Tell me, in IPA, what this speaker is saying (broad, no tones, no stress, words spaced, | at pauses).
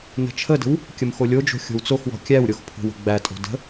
nə̤t͡ʃʰədə̤w | kʲəmxolʲod͡ʒo̤ xʲo̤wt͡soxwɔ̤ kʲæwɾʲox pʰo̤wə̤ɡ͡bætʼo̤ də̤